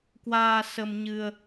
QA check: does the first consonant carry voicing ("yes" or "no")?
no